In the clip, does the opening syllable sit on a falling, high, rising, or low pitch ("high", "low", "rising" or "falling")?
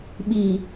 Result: low